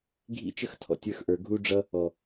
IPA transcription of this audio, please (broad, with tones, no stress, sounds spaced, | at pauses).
ɡʱ ḭ˦ t͡ʃ ə˦ x tʰ ɔ̰˧ tʲ ə˞˧ x ʔ ə˞˨ ɡʱ u˦ ɖ͡ʐ ʌ˦ | ɔ˨